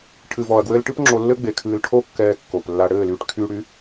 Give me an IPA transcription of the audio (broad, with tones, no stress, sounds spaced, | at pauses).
ʈʰ ɨ˨ v ɔ˨ ɐ̯ ɡ w ɘː˧ l ʈ ɨ˦ p ŋ͡ǁ o˧ lː ɘ˦ ɡ͡b e˨ kʰ ɨː˧ l ʈʰ o˦ kː ɛː˧ kː o˨ p lː a˧ ɽ ɘː˦˨ l yː˧ ʈ kʰ yː˧ ɽ y˨˦